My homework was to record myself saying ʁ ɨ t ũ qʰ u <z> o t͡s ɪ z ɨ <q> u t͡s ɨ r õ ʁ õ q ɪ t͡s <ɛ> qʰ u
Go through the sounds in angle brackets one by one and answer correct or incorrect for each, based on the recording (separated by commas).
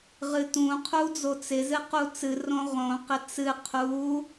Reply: incorrect, correct, incorrect